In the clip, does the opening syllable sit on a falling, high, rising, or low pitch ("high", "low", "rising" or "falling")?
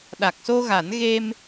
low